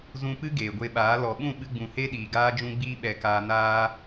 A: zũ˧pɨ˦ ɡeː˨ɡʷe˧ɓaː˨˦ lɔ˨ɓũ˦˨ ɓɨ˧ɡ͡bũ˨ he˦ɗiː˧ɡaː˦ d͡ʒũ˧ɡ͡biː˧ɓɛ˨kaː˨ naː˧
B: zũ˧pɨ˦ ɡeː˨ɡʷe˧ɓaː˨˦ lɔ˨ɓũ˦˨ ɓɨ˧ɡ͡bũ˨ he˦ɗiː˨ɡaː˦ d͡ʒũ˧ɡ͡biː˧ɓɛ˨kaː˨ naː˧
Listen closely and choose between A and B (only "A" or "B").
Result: B